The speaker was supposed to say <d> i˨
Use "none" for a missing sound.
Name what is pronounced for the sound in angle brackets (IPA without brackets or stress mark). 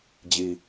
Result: d͡ʑ